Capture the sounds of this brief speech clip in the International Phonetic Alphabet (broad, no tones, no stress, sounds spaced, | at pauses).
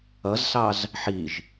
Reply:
ʌ z s ɑ z | ħ i ʒ